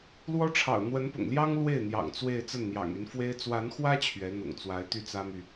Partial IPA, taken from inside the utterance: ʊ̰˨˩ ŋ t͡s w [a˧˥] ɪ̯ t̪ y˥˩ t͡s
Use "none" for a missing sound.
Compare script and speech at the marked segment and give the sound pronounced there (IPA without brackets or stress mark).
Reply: a˧˥